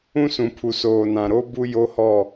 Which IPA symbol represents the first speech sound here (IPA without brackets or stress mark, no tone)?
ũ